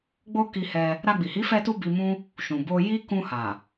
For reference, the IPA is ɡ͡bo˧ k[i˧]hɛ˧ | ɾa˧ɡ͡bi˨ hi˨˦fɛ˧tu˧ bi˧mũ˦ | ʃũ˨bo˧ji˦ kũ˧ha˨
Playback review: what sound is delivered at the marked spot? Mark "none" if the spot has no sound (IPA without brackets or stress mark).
i˧